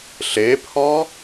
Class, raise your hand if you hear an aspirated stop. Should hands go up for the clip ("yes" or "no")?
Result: yes